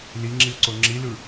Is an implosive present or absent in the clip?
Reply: absent